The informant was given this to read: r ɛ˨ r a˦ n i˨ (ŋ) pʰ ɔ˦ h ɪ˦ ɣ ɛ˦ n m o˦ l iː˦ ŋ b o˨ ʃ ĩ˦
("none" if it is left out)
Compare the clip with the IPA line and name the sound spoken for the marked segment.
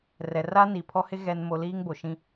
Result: none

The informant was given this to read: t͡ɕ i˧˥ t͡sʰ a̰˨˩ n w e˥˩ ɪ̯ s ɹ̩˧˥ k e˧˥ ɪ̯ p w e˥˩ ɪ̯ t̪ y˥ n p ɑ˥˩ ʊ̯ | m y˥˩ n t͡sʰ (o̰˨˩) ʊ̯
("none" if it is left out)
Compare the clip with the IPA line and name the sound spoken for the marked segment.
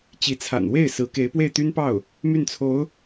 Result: o˧˥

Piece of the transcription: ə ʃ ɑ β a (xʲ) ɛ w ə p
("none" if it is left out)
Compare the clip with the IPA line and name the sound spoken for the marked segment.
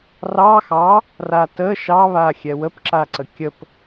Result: xʲ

